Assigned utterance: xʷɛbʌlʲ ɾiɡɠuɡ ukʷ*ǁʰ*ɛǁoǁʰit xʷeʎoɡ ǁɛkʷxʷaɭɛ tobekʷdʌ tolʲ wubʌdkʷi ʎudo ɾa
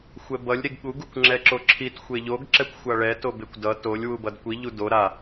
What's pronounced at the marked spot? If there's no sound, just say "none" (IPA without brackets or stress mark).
ŋ͡ǁ